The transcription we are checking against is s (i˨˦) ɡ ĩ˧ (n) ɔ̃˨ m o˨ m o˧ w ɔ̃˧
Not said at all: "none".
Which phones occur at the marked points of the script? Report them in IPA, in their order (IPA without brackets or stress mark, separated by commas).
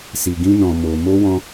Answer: i˨, n